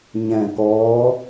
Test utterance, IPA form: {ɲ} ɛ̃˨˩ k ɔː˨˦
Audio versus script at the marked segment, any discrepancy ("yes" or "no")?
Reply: no